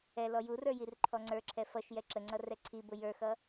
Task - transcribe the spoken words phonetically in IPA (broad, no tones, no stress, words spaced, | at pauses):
ɛlɔ jurə˞ jirǃʰɔŋ͡ǀə˞ǁʰɛ fʌʃ jɛǁəŋ͡ǀʌ rɛǀʰibʊ jə˞xʌ